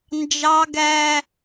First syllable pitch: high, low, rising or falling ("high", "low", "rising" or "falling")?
high